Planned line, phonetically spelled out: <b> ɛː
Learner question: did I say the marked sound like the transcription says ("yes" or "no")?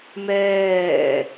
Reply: no